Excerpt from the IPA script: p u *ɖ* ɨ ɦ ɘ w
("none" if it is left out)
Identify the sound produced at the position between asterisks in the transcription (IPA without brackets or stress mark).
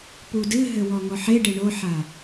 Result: d